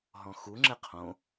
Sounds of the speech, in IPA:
ɦ ɔ̃ x u ŋ͡ǁ ɛ qʰ õ

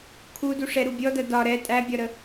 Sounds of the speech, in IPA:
kʰ u d u ʂ ɛ ɾ u bʲ ɔ d ɐ d ɒ ɾ ɛ tʼ æ bʲ ɒ ɾ ə

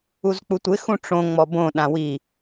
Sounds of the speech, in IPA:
u z k͡p u tʷ ɪ x ũ ʈ͡ʂ õ ŋ͡m ɔ b õ ɗ ã w i

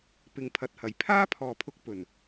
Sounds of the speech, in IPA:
p ɪ˨ ŋ pʰ ɐ˨ t̚ h ɐ˨˩ j pʰ aː˥ pʰ ɔː˨˩ pʰ ʊ˨ k̚ p ɵ˨˩ n

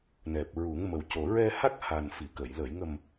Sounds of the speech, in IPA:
n ɛ˨˩ p̚ ɹ u˨˩˦ ŋ m ə˨˩ w c o˨˩ ɹ ɛ˧ h a˦˥ k̚ h a˨˩ n f i˨˩˨ k ə˨˩˨ j l əː˨˩˨ j ŋ ə˨˩ m

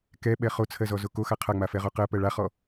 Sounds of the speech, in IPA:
k ɛ ɓ ɛ χ o t͡sʰ ɜ z ɔ z o k o x a qʰ a ŋ͡m a f ɛ ʁ o q ɜ p ɜ ɭ a χ ɔ

